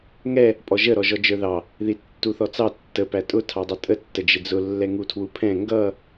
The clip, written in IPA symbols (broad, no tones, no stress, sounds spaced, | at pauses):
ŋ ɛ | pʼ ɔ ʒ ə ɾ ɔ ʒ ɔ d͡ʒ ə˞ ð ɑ | ð i tː u θ ɔ t͡s ɑ tː ə p æ tʼ ʊ tʰ ɑ dˤ ʌ tʼ ə tː ə d͡ʒ ɪ d͡z ʊ lː ɛ ŋ u tʰ w u pʰ ɛ̃ ŋ ɡ ʌ